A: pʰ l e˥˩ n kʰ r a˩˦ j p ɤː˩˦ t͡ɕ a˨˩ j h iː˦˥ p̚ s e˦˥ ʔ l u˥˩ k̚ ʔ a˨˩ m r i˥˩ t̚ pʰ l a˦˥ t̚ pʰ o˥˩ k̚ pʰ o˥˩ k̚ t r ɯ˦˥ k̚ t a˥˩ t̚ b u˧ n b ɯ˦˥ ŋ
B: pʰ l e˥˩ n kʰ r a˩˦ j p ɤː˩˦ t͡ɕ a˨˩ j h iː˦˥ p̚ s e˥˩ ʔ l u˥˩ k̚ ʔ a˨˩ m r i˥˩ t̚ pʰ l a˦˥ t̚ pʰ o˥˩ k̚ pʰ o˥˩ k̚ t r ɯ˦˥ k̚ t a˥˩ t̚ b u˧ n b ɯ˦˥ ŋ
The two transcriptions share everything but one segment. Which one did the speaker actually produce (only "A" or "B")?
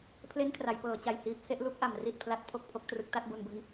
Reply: A